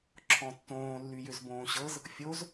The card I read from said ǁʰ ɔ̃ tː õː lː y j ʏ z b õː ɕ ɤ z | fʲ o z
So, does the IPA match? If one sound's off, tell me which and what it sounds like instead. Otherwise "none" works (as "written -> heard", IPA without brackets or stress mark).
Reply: none